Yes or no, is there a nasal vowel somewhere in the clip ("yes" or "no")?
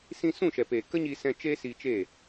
yes